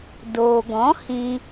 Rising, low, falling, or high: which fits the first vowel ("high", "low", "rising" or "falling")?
low